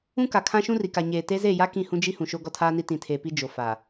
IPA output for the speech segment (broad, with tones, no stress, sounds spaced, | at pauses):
ũ˦ k a˨ kʰ ã˦ ʃ ũ˦ r i˨ k a˨ ɲ eː˨ t e˦ z e˦˨ j a˦ k ĩ˦˨ h ũ˦ d͡ʒ i˦ h ũ˨ ʃ o˦ ɡ ɔ˦ tʰ aː˦ n i˦ t ĩ˨ tʰ eː˨ p i˦ d͡ʒ o˨ f a˨